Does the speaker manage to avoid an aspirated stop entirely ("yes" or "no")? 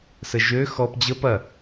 yes